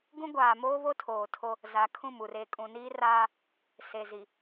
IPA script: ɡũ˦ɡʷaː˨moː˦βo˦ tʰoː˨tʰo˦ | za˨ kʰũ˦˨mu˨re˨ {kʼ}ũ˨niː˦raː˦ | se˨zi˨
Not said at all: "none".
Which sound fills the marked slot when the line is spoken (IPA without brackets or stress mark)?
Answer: kʼ